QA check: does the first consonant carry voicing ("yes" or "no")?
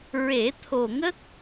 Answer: yes